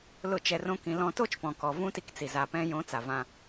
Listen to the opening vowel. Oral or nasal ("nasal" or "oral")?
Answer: oral